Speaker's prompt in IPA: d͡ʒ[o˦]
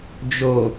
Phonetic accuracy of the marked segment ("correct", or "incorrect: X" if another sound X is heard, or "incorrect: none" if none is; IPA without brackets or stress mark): incorrect: o˨